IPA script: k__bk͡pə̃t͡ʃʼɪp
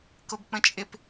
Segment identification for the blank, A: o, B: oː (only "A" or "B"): A